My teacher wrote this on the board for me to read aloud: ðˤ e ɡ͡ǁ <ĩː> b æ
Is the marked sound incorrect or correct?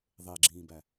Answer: correct